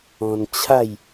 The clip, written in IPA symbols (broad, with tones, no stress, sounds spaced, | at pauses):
ɔ̃˧ n t͡ɕʰ a˥˧ j